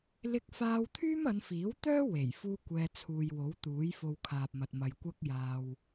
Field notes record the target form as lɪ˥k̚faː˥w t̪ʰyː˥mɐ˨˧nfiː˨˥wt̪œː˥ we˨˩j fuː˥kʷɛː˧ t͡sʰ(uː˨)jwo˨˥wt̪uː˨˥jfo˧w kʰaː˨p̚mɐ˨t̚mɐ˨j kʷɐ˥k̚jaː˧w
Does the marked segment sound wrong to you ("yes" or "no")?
no